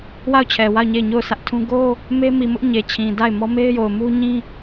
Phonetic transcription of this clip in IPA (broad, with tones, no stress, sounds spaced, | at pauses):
w a˦˨ ʊ̯ t͡ɕʰ ɛ˨ w a˦˨ ʊ̯ ɲ e˦˨ ɪ̯ ɲ o˦˨ ʊ̯ sʰ ä˦ ʔ tʰ ũ˦ ɡ o˦ | m e˦ m i˨ m ʊ˦ ʔ ɲ e˨ t͡ɕʰ ĩ˨ d a˦˨ ɪ̯ m ɔ˦ m e˦ ɪ̯ j o˨ ʊ̯ m u˦ ɲ ĩ˦